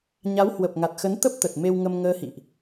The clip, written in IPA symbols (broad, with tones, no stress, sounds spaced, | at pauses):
ɲ a˨˦ w h w ə˨˩ p̚ ŋ a˨˩ t̚ x ə˨˦ n t̪ ə˦˥ p̚ t̪ ə˨˩ t̚ m e˧ w ŋ ə˧ m ŋ əː˧ h ḭ˧˨ ʔ